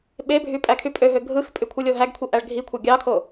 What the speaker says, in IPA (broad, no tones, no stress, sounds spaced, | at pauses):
ɓ e bʱ y pʼ æ kʰ y pʼ ø ɦ ø ɡʱ ɯ x pʼ y kʷʰ ɯ lʲ o ɦ æ ɡ kʷʰ i ʔ æ ɭ ɡʱ i kʷʰ ɑ ɡʲ ɑ kʰ o